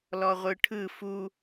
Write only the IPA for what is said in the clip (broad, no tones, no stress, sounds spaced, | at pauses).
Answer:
l ɔ ʁʷ ɯ ʈʰ ɯ f u